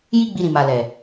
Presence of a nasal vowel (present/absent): present